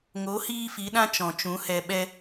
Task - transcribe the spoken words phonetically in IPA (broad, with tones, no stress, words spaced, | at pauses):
ŋo˨˦ hiː˦fi˨˦ɗã˦ t͡ʃɔ̃˨t͡ʃũ˨˦hɛ˧ ɓɛ˧